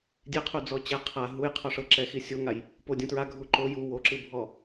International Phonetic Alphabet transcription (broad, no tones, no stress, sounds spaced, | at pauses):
dʲ e qʰ u d͡z ɔ t͡ɕ ɛ qʰ a ɦ u j qʰ ɔ ʂ ɤ ǁ ɛ x i sʲ o ŋ a j | p o dʲ ũ t ɹ a ɡʱ u ǃ o j u w o ǁ ɯ bʱ ɔ